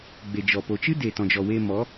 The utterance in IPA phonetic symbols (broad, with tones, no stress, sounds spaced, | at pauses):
ɡ͡b e˨ d͡ʒ ɔ˨ p o˨ t͡ʃ ɨ˦ d e˨ t ɔ̃˨ d͡ʒ ɔ˨ w e˧ m ɔ˨˦